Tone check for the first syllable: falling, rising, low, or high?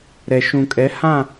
low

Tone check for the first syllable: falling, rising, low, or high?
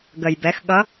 low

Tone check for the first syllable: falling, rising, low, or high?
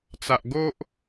low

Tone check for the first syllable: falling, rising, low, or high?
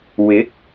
rising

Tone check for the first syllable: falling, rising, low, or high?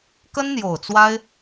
high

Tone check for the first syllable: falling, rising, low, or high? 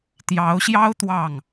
rising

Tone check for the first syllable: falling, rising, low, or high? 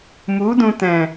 rising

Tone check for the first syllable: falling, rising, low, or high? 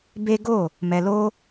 high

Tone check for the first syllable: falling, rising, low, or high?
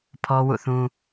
high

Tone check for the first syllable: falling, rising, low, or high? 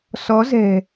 rising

